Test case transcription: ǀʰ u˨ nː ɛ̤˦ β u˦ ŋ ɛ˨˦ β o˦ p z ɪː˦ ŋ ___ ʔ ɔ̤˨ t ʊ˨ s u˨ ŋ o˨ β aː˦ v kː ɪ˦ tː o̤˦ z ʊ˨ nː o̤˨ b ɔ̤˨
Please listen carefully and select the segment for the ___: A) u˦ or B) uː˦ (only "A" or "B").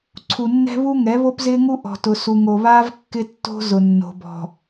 A